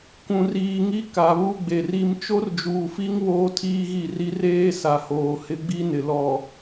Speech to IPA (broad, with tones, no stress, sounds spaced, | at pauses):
kʷ ũ˨ r iː˨ ŋ i˦ k a˨ β u˦ ɡ͡b e˨ r i˦ m t͡ʃ o˦ r d͡ʒ uː˨ f i˦ ŋ β oː˦ tʰ iː˦ ɣ i˦˨ r i˦ r eː˦ s a˨ h oː˨ h ɪ˦ ɡ͡b i˦ n ɪ˨ l ɔ˨